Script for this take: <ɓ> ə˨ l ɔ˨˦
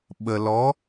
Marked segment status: correct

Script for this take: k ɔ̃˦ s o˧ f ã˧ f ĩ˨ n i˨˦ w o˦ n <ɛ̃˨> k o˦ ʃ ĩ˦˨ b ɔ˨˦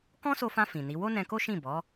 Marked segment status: incorrect: ɛ̃˧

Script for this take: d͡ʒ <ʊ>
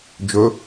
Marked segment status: incorrect: ɵ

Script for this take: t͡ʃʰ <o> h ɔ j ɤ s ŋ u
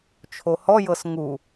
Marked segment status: correct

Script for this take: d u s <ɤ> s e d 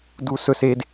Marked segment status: incorrect: ɵ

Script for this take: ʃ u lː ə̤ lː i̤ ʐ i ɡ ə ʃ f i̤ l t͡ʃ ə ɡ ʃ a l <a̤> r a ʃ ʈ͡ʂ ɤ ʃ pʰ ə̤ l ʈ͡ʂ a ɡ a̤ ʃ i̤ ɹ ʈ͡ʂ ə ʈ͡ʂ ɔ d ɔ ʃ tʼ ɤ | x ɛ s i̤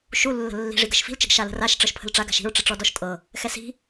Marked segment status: incorrect: ə̤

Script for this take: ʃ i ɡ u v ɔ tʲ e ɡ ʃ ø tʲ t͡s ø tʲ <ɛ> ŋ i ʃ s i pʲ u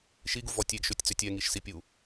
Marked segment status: correct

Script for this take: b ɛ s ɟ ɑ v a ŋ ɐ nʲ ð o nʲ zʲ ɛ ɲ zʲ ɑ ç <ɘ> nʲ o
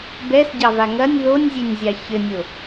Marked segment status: correct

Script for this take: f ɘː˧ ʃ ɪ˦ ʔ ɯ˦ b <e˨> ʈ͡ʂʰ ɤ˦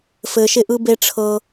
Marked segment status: incorrect: e˦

